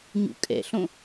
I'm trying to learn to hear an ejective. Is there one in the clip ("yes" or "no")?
yes